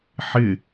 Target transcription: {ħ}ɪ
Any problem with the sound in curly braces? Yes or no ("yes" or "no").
no